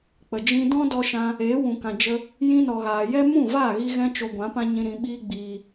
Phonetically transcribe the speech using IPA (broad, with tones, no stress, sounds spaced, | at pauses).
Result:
k͡p ə˨ d͡ʒ ĩ˧ d ɔ̃˦ d ɔ˧ ʃ ã˧ | eː˨˦ w ũ˨ k ã˨ d͡ʒ ə˧ | j ĩ˧ n ɔ˨ ɣ aː˨ j ɛ˦ m ũ˦˨ v aː˦˨ ɣ i˧ ɣ ɛ̃˦ t͡ʃ o˧ ɡʷ ã˨˦ p ã˦ ɲ ĩ˧ ɾ ĩ˧ ɓ iː˦ ɡ͡b iː˧